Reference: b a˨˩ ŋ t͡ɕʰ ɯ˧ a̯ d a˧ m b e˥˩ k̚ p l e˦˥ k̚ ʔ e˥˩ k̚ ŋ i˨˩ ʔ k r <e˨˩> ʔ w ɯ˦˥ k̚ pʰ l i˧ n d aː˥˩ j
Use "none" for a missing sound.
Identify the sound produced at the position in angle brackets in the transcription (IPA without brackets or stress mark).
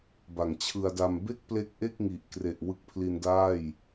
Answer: e˨˩